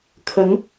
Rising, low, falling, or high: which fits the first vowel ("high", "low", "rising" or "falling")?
rising